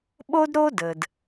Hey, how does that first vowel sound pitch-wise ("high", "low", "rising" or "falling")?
high